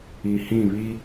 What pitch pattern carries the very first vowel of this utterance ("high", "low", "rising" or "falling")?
low